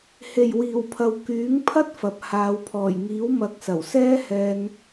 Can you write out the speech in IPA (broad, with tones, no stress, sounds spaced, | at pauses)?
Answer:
h e˨˩ j w iː˨˩ w pʰ ɐ˨ w k yː˨˥ ŋ pʰ ɐ˥ t̚ f ɐ˨ p̚ h aː˨˧ w pʰ ɔː˨˩ j ŋ iː˨˥ w m ɐ˨˥ k̚ s ɐ˨˩ w s ɛː˥ h ɛː˧ n